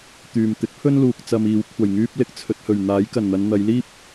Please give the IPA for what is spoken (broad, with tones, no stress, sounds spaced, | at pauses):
t̪ yː˨ m t̪ ɪ˨˥ k̚ pʰ ɵ˥ n l uː˨ k̚ t͡s ɐ˧ m iː˨˧ w kʷʰ ɐ˨˩ j ŋ yː˥ p̚ l ɪ˧ k̚ t͡sʰ ɵ˧ t̚ h ɵ˨˩ ɥ n̪ aː˨˥ j k ɐ˨˩ n n̪ ɐ˨˧ n n̪ ɐ˨˧ j l iː˥ p̚